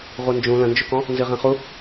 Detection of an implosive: absent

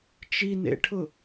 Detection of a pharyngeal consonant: absent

